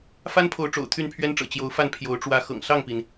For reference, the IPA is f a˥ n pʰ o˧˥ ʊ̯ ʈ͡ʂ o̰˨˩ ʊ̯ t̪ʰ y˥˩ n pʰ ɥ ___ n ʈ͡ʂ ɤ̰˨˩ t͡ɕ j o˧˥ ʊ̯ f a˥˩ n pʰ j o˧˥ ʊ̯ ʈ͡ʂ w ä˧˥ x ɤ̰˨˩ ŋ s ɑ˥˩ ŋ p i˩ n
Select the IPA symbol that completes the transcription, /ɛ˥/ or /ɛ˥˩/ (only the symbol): ɛ˥